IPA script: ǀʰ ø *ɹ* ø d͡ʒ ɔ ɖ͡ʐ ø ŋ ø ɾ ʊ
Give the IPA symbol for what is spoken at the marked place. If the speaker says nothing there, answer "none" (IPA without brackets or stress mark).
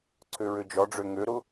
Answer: ɹ